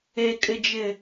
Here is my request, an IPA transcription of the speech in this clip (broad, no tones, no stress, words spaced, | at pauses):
ekʼɪd͡ʒɪ